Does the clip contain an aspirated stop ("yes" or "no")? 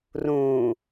no